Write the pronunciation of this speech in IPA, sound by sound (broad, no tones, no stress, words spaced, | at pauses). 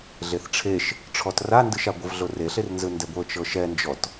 ɮeθʈ͡ʂʰeʃ | ʈ͡ʂʰɔtrandɯʃa ɡʷɯvɮoreɬer nzɯndɛɡʷɤ t͡ʃɤʃɛnd͡ʒɔt